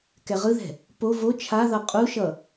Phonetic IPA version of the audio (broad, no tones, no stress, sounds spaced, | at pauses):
k ɛ ʁ ɯ ð ɛ̤ | p o v o t͡ʃʰ a ð ʌ qʼ u ʃ ʌ